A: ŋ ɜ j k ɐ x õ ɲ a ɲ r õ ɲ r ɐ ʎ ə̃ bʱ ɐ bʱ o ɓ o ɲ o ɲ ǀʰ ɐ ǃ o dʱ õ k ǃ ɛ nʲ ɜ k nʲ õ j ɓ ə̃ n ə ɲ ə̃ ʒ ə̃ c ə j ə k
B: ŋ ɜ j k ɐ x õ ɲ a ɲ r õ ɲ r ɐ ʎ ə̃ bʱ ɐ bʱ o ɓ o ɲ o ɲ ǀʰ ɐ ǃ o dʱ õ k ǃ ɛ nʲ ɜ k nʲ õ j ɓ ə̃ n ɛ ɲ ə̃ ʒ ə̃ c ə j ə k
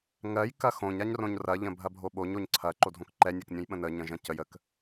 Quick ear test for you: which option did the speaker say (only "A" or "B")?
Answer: A